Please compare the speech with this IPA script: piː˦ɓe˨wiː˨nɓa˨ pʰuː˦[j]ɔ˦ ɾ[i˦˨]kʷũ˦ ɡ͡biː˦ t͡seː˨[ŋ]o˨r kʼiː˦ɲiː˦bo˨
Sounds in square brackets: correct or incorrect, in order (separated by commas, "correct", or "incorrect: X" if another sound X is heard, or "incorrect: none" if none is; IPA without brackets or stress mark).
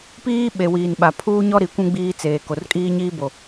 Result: incorrect: ɲ, incorrect: i˨, incorrect: k